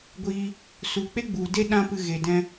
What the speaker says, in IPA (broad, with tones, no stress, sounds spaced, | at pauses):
ɡʷ iː˧ | s u˨ k͡p e˦ ɡ͡b u˨ d e˦ ɗ ã˦ p ɨ˧ ɣ e˨ d ɛ̃˧